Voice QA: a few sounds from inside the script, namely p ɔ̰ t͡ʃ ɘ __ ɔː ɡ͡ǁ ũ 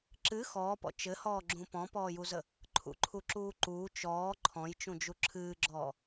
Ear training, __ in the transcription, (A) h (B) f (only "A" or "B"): A